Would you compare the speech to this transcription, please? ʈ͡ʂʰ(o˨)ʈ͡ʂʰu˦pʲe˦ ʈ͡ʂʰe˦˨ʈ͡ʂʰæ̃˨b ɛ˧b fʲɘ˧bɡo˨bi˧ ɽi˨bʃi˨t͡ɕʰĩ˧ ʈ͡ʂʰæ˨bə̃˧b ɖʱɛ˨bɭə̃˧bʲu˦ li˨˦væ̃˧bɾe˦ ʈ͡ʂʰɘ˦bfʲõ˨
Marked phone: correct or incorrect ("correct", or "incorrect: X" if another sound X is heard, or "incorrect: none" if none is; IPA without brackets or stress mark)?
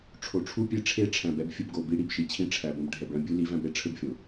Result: correct